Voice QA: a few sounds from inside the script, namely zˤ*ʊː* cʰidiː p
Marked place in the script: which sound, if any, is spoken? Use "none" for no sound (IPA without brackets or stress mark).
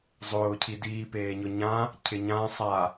ʊː